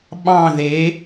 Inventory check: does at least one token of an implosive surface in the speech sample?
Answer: yes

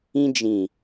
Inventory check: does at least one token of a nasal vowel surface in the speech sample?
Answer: yes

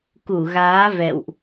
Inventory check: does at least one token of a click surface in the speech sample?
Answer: no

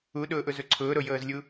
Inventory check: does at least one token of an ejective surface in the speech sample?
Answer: no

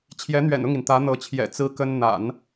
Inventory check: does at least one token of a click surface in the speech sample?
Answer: no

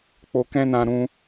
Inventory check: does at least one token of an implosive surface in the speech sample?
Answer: no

